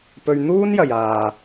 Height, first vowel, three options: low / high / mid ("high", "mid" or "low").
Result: mid